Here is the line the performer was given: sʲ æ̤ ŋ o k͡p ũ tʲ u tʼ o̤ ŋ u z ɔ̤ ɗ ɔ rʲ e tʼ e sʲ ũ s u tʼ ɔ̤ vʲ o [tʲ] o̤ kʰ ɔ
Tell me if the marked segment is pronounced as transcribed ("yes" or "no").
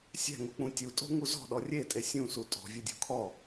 no